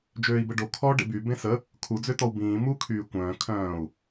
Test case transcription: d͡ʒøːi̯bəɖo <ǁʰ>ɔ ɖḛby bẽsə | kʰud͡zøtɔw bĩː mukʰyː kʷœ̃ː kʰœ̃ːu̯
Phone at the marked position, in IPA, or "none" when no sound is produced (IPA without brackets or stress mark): kʰ